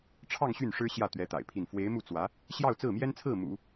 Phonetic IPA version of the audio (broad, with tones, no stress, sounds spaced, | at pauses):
ʈ͡ʂʰ ɑ˥˧ ŋ ɕ y˥˩ n ʂ ɻ̩˥ ɕ j ä˥˩ t̪ ɥ ɛ˧˥ t̪ a̰˨˩ ɪ̯ pʰ i˥˩ n f w e˧˥ ɪ̯ m u˥˩ t͡s w ä˧˥ | ɕ j ɑ˥˧ ʊ̯ t͡s ɹ̩˥˩ m j ɛ˥ n t͡sʰ ɹ̩˥˩ m ṵ˨˩˦